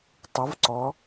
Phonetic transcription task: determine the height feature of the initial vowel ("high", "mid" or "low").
high